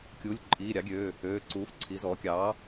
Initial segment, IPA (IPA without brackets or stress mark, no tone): kʲ